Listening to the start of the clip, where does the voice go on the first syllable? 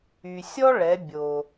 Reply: low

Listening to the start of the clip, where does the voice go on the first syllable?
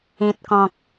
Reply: low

